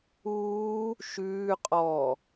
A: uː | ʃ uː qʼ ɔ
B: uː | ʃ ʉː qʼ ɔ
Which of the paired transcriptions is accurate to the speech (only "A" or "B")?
B